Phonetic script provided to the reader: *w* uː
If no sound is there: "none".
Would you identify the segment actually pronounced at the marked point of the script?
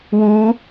w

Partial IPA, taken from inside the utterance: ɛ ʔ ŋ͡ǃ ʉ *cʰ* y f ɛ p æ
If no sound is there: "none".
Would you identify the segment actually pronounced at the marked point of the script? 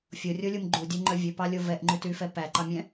t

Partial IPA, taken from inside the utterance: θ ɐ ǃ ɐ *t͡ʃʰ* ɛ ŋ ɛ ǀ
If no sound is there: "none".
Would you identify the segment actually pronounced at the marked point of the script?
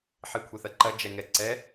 d͡ʒ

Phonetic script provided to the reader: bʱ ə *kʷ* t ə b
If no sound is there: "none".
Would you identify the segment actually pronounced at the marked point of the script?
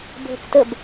k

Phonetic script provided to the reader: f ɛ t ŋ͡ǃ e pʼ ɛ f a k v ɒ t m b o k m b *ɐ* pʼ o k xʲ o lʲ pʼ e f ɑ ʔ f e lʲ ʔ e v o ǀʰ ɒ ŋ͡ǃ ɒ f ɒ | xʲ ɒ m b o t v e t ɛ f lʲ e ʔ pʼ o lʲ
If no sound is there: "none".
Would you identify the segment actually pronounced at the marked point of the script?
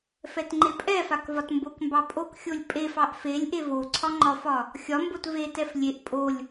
ɑ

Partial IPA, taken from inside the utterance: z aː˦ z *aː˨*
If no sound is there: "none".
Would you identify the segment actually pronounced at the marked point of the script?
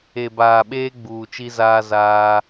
aː˦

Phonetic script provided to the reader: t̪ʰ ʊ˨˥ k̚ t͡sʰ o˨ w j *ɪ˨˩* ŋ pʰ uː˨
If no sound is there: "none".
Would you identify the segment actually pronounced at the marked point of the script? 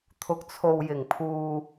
ɪ˨˩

